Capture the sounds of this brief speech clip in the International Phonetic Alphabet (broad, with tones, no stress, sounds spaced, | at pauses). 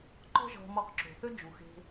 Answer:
ǃ ɔ̤˦ ʒ ɔ̤˧ m ɔ˧ q ǁ o̤˨ θ ø˦ d͡ʒ u˨ x e̤˧